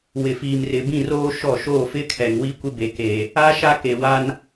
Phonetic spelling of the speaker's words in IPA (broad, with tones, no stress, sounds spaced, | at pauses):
w ɪ˨ f iː˨ m r ɪ˨ b ĩ˦˨ r oː˦ ʃ ɔ˦˨ ʃ oː˦˨ f ɪ˦ kʰ ɛ˨ ŋ w i˦ kʷ ɪ˦ b e˨ k eː˨ | a˦ ʃ a˦ k e˨ w a˦ n